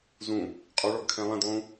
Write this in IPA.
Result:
z ũ | qʼ ɔ ɭ ɔ ɡ kʰ ɛ̃ lˠ ɛ̃ d lˠ ũ

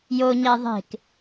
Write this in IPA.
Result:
j o ɲ æ ðˤ e̤ k

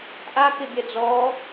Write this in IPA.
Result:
ʔ a k ɪ bʲ ɜ d͡z ɔ

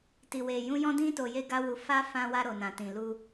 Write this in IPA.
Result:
t i˨ w e˨ j ũ˧ j ɔ̃˦ d ĩ˦ t o˧ j e˦ ɡ a˦ w u˧ f a˦ f ã˧ w a˧ ɾ o˨ n ã˨ t ĩ˨ l u˧

